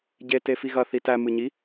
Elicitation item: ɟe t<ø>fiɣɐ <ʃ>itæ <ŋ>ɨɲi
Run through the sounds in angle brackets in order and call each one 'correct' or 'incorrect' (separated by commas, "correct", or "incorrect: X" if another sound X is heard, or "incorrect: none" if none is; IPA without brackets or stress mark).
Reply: incorrect: e, incorrect: θ, incorrect: m